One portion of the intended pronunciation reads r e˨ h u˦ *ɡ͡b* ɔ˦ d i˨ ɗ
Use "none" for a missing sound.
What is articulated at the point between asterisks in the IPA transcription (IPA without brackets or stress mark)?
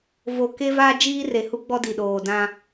ɡ͡b